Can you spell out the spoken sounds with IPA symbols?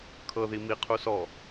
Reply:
kʰ ɤ ð i m i qʰ u s ɔ

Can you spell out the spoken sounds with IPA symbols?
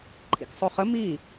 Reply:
ǃʰ ḭ k sˤ o χ ə m i

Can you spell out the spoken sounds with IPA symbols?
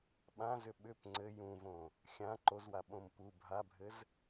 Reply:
ɓ ã z ʏ ɓ ʏ p ŋ͡ǀ ɘ j ũ v õ | xʲ ã ǃ o z w a ɓ õ m p u bʱ a bʱ ɘ z

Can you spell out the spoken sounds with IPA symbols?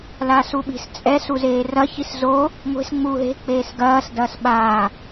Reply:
l aː s u ɓ i̤ s t͡sʼ ɛ s u z eː r ɐ ç i s z o | ŋʷ e̤ s ŋ͡m uː ɦ e̤ k͡p eː s ɡ ɐː s d ɐː s ɓ aː

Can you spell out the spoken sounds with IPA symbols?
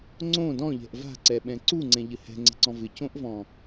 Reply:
ŋ͡ǀ õ d ɔ̃ ʎ ɛ̤ ʔ v a̤ ǀ ɛ ɓ ɛ̃ ǀ u ŋ͡ǀ ɛ̃ ʎ ɘ h ɛ̤ ŋ͡ǀ ɛ̤ ǀ ɔ̃ v ɪ c õ ʔ v ɔ̃

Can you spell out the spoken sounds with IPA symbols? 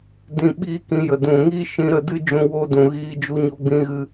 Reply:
d ĩ˧ ɓ iː˦ k ĩ˧ j ə˨ d ũ˨ ŋ iː˦ ʃ ĩ˧ ɾ ə˦˨ d ɨ˦ d͡ʒ ũ˧ w o˧ d ũ˨ ɣ iː˧ d͡ʒ u˧ ɲ o˧ ɡ͡b ĩ˧ ɣ ɨ˧

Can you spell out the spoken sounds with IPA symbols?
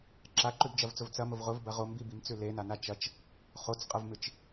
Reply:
ǁ a ǃ ʉ b d͡ʒ ɐ v t͡s ʊ v t͡s ɐ m ʊ v ʁ ʊ v b ɐ ʁ o m b i b i m t͡s ʉ l e n a n a t͡ʃ ɐ t͡ʃ | χ o t͡s qʼ ɐ v m ɨ t͡ʃ

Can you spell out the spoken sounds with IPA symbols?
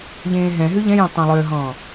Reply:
ʎ ẽː ɦ ɛ̃ ɦ ʉ ʎ ɛ̃ j ɛ̃ tˤ ɛ̃ lˠ ø ɦ ɔ̃ː

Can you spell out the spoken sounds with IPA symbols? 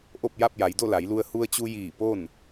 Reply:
ʔ o˥˨ p̚ j a˥˨ p̚ j a˩˧ j d o˥˨ l a˩˧ j l u˧ ə̯ h u˧ ə̯ t͡ɕ u˧ j iː˧˩ p o˥˨ n

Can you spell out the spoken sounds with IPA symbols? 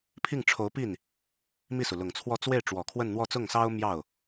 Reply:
pʰ i˥˩ ŋ ʈ͡ʂʰ o˧˥ ʊ̯ p i˥˩ n | m i˥˩ s u˩ l ʊ˨˩ ŋ t͡sʰ w ɔ˥˧ t͡s w e˥˩ ɪ̯ ʈ͡ʂ w ɔ˨˩ kʰ w ə˥˧ n n̪ w ɔ˥˧ t͡s ʊ˥˩ ŋ s ɑ˥ ʊ̯ m j ɑ˥˩ ʊ̯

